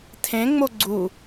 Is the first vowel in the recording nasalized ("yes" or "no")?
yes